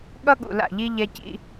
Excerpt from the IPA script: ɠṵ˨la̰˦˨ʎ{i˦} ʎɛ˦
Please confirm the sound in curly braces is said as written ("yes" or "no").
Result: yes